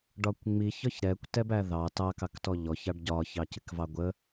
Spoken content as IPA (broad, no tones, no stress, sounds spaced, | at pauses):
ɖ ɒ kʷ ŋ͡m i ç ɒ ç ɾ ɛ kʷ t ɛ b æ ð ɑ t ɑ k ɑ k t ɔ ʎ ɔ ç ɑ ɖ ɟ ɒ ç ɑ c ɪ k v ɑ ɡʷ ə